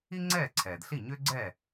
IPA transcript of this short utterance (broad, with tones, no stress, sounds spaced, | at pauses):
i˥ ŋ͡ǀ ɛː˥˩ ǀʰ ɛː˩ d ɬ i˥˩ ɲ ʏː˥ ɡ͡ǀ ɛ˥˩